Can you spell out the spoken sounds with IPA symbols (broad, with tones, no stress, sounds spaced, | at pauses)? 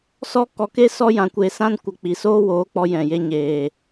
s ɔ˦ k ɔ˧ k e˦ s ɔ˦ j ã˧ kʷ e˧ s ã˦ n kʷ ə˧ k͡p i˨ s oː˦ w oː˨˦ k͡p ɔ˧ j ɛ̃˨ j e˧ ɲ eː˨